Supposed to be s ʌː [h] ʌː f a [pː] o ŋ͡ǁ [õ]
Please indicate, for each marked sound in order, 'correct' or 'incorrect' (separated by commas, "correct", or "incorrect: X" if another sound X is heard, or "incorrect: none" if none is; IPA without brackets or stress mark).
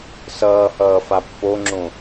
correct, correct, correct